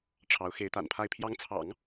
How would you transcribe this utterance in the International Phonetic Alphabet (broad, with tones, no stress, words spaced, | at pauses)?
ʈ͡ʂʰɑ˧˥ʊ̯ xe˧˥ɪ̯t̪a̰˨˩npʰa˥˩ɪ̯ pʰjɑ˧˥ŋt͡sʰɑ̰˨˩˦ŋ